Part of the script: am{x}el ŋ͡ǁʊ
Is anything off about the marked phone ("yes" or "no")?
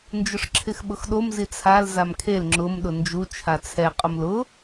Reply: yes